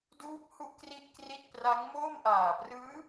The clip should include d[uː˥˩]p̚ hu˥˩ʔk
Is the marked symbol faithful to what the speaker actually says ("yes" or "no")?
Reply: no